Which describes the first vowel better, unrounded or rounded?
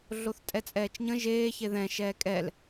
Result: rounded